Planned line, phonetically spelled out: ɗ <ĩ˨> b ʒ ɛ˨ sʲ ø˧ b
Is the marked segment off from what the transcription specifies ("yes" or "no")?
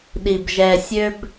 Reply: yes